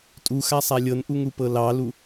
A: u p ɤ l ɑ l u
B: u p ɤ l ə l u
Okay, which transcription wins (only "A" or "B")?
A